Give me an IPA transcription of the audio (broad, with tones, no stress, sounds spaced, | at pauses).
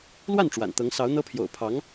l w a˥˩ n ʈ͡ʂ w a̰˨˩ n t̪ ɤ˧˥ ŋ s ɑ˧˥ ʊ̯ n̪ ɤ˥ pʰ j o̰˨˩ ʊ̯ pʰ ɑ˧˥ ŋ